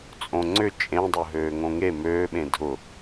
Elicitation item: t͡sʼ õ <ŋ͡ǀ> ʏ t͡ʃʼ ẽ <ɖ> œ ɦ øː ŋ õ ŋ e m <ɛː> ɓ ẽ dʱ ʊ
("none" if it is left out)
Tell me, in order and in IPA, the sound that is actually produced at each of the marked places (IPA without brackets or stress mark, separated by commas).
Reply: ŋ͡ǀ, dˤ, øː